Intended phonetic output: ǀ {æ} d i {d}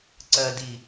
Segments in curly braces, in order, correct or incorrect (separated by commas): incorrect, incorrect